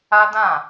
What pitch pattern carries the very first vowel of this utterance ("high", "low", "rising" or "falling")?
high